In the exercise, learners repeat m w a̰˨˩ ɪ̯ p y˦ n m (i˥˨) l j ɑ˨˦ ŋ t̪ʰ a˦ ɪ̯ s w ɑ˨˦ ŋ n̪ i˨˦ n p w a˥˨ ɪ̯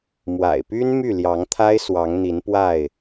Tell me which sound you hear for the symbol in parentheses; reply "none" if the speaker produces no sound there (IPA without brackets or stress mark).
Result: y˥˨